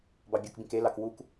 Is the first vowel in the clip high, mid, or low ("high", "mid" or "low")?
low